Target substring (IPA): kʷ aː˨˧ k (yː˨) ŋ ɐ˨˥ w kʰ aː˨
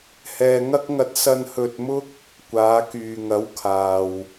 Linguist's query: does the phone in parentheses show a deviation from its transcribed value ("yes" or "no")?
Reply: no